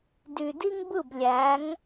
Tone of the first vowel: low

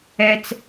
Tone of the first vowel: high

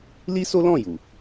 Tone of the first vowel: high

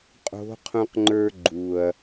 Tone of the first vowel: rising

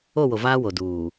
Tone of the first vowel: falling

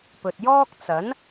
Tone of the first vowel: low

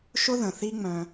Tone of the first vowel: high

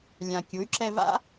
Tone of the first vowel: low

